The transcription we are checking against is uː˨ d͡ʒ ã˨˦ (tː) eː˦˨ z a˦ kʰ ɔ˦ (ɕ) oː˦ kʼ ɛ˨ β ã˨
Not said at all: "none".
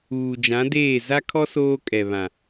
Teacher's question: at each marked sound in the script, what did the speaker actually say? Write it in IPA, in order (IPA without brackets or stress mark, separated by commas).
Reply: d, s